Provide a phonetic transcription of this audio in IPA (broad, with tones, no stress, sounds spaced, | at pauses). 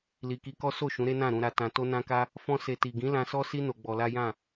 l i˨ k i˧ k ɔ˦ s o˦˨ ʃ ũ˨˦ ɾ e˦ n ã˦˨ ɾ ũ˧ ɾ a˧ t ã˧ t o˦ n ã˦ k a˦ | f ɔ̃˧ s e˨ t i˨ ɡ ĩ˨˦ l ã˧ s ɔ˦ s i˦ n o˧ ɡ͡b ɔ˧ l a˦ j ã˦˨